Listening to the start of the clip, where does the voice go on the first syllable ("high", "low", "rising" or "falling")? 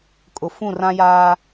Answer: low